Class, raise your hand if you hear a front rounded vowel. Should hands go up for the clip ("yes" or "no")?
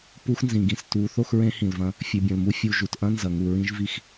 no